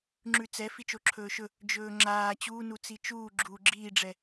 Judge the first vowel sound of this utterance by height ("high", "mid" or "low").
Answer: high